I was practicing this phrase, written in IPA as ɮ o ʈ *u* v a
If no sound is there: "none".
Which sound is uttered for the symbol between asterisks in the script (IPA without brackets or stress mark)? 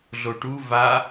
u